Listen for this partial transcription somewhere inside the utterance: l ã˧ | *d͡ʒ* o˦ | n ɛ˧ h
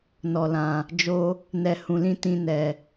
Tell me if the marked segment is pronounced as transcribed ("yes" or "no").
yes